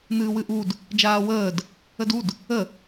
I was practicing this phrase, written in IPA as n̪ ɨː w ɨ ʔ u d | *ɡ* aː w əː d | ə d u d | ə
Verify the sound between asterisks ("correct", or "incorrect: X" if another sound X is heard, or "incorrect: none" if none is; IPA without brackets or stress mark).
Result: incorrect: d͡ʒ